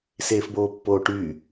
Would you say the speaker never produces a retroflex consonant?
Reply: no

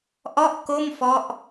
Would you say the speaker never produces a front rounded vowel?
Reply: yes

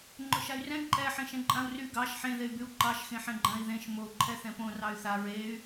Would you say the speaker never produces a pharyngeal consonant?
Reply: no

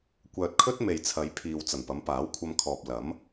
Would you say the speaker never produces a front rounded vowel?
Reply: no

